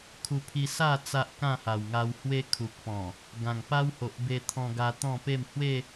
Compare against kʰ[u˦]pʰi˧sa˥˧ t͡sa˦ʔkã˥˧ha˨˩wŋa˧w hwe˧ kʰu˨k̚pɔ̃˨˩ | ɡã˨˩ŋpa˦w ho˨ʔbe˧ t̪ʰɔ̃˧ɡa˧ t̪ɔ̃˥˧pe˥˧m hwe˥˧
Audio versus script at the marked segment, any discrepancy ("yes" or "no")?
yes